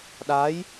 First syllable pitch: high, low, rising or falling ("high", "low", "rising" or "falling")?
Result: rising